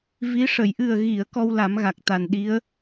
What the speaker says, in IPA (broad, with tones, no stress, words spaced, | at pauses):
vi˧˥ ʂə˨˩˨j ʔɨ˨˩ə̯ɣi˨˩˨ə̯ kɔ˧wla˨˩˦m ɣa˨˩k̚t̪a˨˩nɗi˧˥ə̯